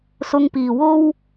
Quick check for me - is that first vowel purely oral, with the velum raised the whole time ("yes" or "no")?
yes